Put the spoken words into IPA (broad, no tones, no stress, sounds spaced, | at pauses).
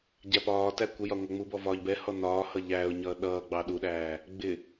ɟ æ p ɒː t æ kʷ ə j ɒ ŋʷ æ ŋ͡m u b ɔ v ɒː ʎ b ɛ h ɔ n ɒː h ʌ ʎ æː ʊ̯ ɲ ʌː ɗ ʌː ɡ͡b ɑ ɗ u ɗ æː | ɡ͡b ɪ